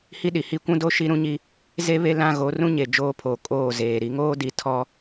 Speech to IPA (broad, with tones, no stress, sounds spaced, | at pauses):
h i˦ ɗ i˨ h i˦ kʷ ũ˦ d o˦ ʃ i˦ ɾ ũ˦ ɲ i˦ | z e˦ β e˦ l ã˦ ɣ o˨˦ r ũ˦ ɲ e˨ d͡ʒ oː˦ pʰ oː˨ kʼ oː˦˨ z eː˨ ɾ i˨˦ ŋ oː˦ d i˨ tʰ ɔ˦